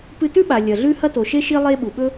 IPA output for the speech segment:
p ɨ˧ t ʉ˥ ɓ a˩ lʲ ɐ˩ ɮ ʉ˧ h ɐ˧ t o˩ ʃ e˧ ʃ i˧ lˠ e˧ ɓ u˩ ɓ ɵ˧

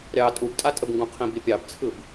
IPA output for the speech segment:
ɾʲ ɑ tʼ u b tʼ a tʼ ə b ŋ ɡ ũ qʰ ĩ b i pʲ ɑ b t͡sʰ ɯ b

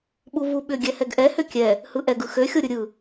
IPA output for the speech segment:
ɓ u v u ɓ ʏ ɡʲ ɛ h ɛ ɡ ʔ ɛ h ʏ kʲ ɛ | h ɯ ʔ ɛ ɡ ɯ x ø xʲ o ɾʲ ɯ ɾʲ ɯ

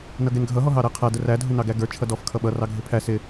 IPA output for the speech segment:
n ʌ ɡ ɛ n ɡʱ ʌ ɦ ɔ ɦ ɑ ɾ æ qʰ æ d ə r æ dʱ ʊ n ɑ ɡ æ ɡ ə˞ t͡ʃʰ ʌ d ɔ f kʰ ʌ ɓ ʌ r ɑ ɡʱ ɪ pʰ æ s ɪ

